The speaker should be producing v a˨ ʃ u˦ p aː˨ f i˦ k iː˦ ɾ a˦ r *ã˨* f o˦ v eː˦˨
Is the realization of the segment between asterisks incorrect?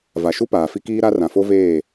no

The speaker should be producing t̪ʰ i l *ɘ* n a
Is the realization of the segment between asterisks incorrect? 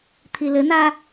no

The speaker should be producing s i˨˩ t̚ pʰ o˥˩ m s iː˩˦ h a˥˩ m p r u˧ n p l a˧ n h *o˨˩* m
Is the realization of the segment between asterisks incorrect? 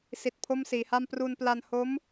yes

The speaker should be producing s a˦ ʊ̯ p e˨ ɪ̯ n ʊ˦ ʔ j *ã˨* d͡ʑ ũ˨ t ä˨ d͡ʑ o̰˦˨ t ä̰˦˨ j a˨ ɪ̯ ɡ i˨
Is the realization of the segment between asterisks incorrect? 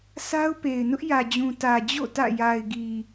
yes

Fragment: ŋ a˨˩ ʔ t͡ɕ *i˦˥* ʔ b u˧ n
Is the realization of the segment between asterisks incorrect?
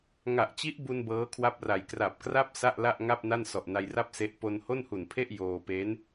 no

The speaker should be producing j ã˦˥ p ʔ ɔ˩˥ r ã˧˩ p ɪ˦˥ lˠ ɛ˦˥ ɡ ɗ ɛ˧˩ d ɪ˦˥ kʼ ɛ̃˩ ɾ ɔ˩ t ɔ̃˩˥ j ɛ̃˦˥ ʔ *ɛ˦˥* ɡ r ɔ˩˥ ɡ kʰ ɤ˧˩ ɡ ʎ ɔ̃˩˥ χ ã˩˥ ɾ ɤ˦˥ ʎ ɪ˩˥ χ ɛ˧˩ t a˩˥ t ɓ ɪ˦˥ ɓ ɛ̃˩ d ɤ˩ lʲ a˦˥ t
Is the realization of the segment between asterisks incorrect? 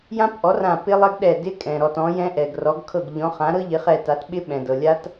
yes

